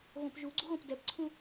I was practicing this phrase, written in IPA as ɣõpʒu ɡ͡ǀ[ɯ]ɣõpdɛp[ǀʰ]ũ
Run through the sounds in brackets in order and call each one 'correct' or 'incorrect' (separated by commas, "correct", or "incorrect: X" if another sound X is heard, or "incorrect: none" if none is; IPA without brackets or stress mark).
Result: incorrect: u, correct